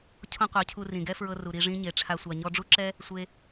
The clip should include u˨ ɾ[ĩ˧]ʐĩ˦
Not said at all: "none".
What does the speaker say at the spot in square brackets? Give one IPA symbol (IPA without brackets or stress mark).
i˧